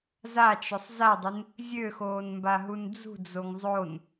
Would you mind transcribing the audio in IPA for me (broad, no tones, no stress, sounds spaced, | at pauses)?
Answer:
z a t͡ʃ ʊ sˤ z a dˤ ɪ n | zʲ ø x oː n m b a ɦ u n d͡z ṳ d͡z o ŋ zˤ o n